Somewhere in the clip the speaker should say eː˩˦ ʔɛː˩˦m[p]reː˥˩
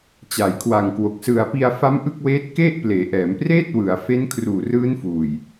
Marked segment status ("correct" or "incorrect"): correct